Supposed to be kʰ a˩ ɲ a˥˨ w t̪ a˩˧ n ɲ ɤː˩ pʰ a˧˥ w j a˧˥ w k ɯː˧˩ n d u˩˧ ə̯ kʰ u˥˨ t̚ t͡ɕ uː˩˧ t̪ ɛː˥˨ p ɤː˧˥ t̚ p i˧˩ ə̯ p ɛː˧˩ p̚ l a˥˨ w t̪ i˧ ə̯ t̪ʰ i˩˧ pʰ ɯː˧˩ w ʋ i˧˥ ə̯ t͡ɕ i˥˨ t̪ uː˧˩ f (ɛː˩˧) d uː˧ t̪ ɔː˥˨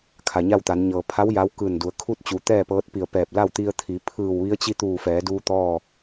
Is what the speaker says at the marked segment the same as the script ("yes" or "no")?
yes